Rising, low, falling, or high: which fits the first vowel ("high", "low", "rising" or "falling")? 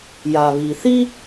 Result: low